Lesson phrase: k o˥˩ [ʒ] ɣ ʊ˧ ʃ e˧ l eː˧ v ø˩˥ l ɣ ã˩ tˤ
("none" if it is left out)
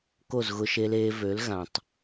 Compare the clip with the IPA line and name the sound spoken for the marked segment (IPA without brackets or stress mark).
z